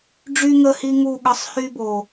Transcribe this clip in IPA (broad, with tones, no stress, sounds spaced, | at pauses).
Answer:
ɖ͡ʐ y˦ ŋ ə˦˨ h i˦ ŋ u˦˨ ɠ ə˨˥ sˤ h y˦ b o˨˩